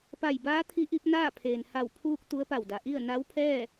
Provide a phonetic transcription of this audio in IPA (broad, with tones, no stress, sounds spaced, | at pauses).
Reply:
p a˧˩ j b aː˧˥ t̪ʰ i˧˥ ʔ i˧˥ p̚ n aː˥˨ pʰ eː˩ n h a˧˩ w pʰ uː˧ k̚ t̪ u˧˥ ə̯ p a˧˩ w d a˩ ʔ i˥˨ ə̯ n a˧˥ w pʰ ɛː˥˨